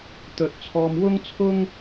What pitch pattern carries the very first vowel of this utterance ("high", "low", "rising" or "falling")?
low